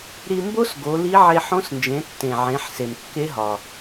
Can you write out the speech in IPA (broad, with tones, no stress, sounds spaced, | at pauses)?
ɾ i˧ m b o˥ s ɡ o˩˧ l i˧˥ ʕ e˧ ħ õ˧˥ s n d͡ʒ ẽ˩˧ tː ẽ˩ ʕ ẽ˩˧ ħ s e˩ m kː e˧˥ ɦ ɒ˩